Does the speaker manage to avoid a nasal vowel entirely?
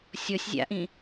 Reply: no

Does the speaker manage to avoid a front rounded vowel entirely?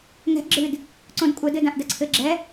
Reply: yes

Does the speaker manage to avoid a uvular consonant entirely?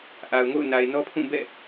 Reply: yes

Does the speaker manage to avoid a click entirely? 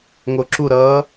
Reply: no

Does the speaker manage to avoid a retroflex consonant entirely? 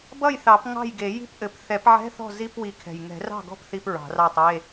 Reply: yes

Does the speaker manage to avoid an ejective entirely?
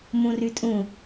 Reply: no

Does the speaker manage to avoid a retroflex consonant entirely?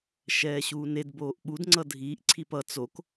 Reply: yes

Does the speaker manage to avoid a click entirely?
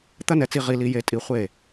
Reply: yes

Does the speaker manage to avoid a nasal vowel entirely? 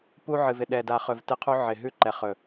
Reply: yes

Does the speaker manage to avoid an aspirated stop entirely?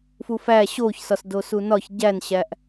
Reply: yes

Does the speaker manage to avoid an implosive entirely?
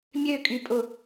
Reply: yes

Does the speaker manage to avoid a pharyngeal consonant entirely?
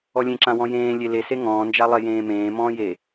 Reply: yes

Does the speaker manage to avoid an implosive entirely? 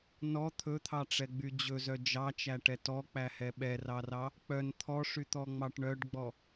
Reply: no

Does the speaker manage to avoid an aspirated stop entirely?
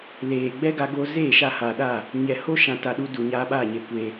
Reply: yes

